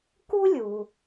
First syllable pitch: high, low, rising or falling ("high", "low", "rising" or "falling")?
high